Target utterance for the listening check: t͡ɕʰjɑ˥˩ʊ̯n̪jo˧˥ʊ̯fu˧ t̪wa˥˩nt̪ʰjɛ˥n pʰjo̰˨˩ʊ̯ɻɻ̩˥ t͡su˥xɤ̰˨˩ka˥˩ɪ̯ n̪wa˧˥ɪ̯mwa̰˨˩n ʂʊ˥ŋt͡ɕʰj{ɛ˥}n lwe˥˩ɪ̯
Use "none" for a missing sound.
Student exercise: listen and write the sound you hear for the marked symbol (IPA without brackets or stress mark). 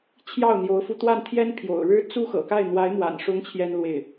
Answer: ɛ˥